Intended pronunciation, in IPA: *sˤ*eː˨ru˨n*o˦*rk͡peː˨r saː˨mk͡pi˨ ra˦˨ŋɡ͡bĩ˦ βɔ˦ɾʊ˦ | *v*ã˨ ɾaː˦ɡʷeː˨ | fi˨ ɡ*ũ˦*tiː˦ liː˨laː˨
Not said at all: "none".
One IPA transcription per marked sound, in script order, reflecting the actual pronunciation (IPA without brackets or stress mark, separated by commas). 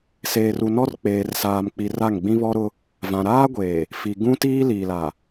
s, ɔ˦, v, ũ˦